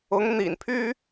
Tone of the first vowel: rising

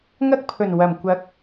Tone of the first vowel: high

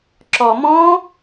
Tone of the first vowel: low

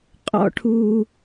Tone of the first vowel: high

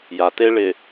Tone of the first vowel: low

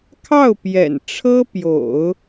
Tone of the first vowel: falling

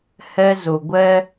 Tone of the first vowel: high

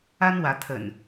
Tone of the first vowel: high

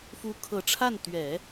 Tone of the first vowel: rising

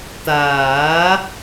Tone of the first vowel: rising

